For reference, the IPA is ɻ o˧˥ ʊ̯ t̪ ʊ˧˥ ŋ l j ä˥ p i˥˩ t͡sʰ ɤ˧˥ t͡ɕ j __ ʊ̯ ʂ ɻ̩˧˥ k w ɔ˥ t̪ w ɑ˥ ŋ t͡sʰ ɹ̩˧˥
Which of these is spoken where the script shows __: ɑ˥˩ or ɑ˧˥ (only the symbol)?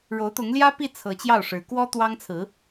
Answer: ɑ˥˩